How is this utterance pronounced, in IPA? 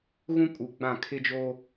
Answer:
ɣũ˦kʼu˨ ɡ͡bã˦˨kʰɪ˦d͡ʒoː˦

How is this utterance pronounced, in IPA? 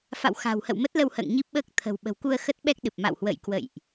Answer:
fa̰˧˨wxa̤˨˩whə̰˧˨w mə˦˥t̚lə˧whə̰ː˧˨ŋ ɲi˦˥p̚ɓəː˦˥k̚ t̪ʰə̤˨˩wɓə̤˨˩wku˧ə̯ xə˦˥t̚ɓɛ˦˥k̚ɗɨ˨˩p̚ ma̰˧˨whwə̰˧˨jkwə̰˧˨jʔ

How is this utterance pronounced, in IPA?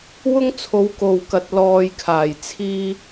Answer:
wʊ˥ŋt͡sʰo˨˧w ko˨w kɐ˨t̚ lɔː˨j kʰaː˨˩jt͡sʰiː˧

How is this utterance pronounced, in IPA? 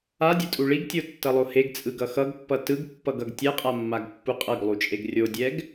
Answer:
adʲɯtʼu ɭiɡtʲotːʌlˠo heɡt͡sʼɯɡʌ xʌɡpːʌ tɯɡpːʌɡʌɡ tʲɛqʼamːaɡpːu qʼʌɡlˠut͡ʃʼeɡ rʲodʲɛɡ

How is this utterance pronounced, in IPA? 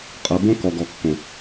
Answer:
qʼɤ˧bõ˦ kɔ˨ɡɔ˨kːõ˨

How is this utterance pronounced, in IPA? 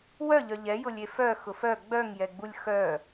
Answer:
wœʎœ ʎɛjʊlʲe fœxʊf œ ɡ͡bœŋjɛɡ͡bulʲ xœ

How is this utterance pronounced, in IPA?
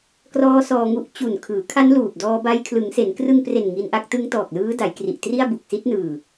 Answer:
krɔː˦˥ sɔː˧ŋu˦˥ʔ t͡ɕu˨˩nkʰɯː˩˦kʰa˦˥nluː˨˩p̚ dɔː˧ba˧j kʰlɯ˩˦ŋse˩˦nkrɯ˧ŋpre˨˩n ŋi˧nʔa˥˩k̚ tɯ˦˥ŋ tɔː˨˩k̚lɯː˦˥da˩˦jkri˨˩ʔ tri˥˩a̯bu˨˩k̚si˦˥t̚ nɯː˨˩

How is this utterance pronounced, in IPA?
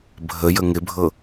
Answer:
bʱəjə ŋɪbʱɤ

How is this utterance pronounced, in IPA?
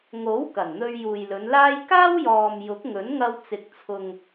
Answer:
ŋo˨˥w kɐ˨˩nn̪ɵ˧ɥ juː˨jlɵ˨˧nlaː˥j kaː˥wjɔː˨m jʊ˨˥k̚ŋɵ˨˥nŋɐ˧wt͡sɪ˨k̚ t͡sʰʊ˨ŋ

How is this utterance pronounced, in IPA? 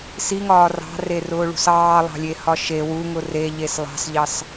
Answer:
siŋɒː rɑ̤rerʊːɭṳs ɑːlˠɑ̤lʲehɒ ʃe wuŋʊ reʎes lˠɑ̤sʎɑs

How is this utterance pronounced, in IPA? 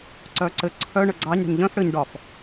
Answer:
ǀœǀɘ ǀʰœ ɳəɡ͡ǀɑɲɽɛ̤ɲ ʎœ̃f ɽɘɲ ɖɒf

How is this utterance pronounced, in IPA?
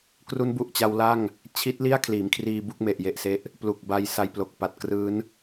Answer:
kru˦˥nbu˨˩ʔt͡ɕa˧w la˥˩ŋ | t͡ɕʰi˦˥t̚li˥˩a̯ kʰliː˩˦mkʰriː˧bu˥˩k̚ me˨˩ʔje˨˩ʔse˦˥ʔ | plu˨˩k̚ba˧j sa˧jplo˨˩k̚pa˨˩t̚krɯː˦˥n

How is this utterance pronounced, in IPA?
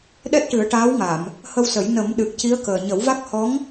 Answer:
ɗɛ˦˥t̚ʈɨ˨˩˦ə̯ʈaː˧˥wŋa˨˩˨m | hə˧wsə˨˩˦j nə˨˩˦m ɗɨ˨˩k̚ci˧˥ə̯kəː˨˩ ɲə˨˩˦wva˦˥k̚ hɔ˧˥ŋ

